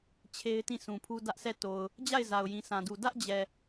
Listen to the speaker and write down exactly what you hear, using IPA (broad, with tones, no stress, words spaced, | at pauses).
t͡ɕʰe˦ɪ̯tĩ˦˨ sũ˨pʰu˦ dä˦ʔsʰɛ˦˨ to˨ʊ̯ | d͡ʑa˦˨ɪ̯ za˨ʊ̯jĩ˨sã˨du˨ dä˦ʔd͡ʑɛ˨